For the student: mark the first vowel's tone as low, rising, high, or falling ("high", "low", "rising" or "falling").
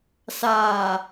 low